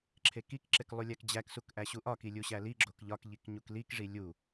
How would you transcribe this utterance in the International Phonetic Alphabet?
ǁʰ e k i k ǁ e k lˠ u lʲ æ k d͡ʑ æ k s u k ʔ æ ɕ u ʔ ɒ k i lʲ u ɕ æ l i ɡ͡ǁ o k ʎ ɒ k ʎ i k ɲ u k l i k ʐ i lʲ u

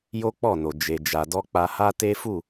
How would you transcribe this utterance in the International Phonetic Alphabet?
j o˦ k͡p ɔ˦˨ n o˨ d͡ʒ e˨ d͡ʒ a˨ d ɔ˧ k͡p a˧ h a˦ t e˦ f u˦˨

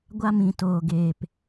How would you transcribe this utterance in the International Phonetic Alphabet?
ɡʷ a˧ m ĩ˨ t oː˨ ɡ eː˨ p

